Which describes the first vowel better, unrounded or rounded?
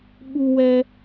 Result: rounded